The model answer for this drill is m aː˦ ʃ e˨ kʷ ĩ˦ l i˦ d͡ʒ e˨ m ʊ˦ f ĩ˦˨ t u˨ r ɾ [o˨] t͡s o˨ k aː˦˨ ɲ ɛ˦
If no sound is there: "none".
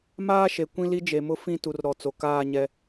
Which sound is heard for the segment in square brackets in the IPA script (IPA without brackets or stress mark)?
ɔ˨